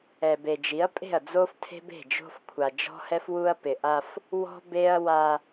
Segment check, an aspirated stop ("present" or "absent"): present